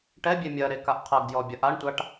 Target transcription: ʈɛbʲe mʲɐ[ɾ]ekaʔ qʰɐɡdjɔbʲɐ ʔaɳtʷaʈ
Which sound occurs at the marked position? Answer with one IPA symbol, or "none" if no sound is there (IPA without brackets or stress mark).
ɾ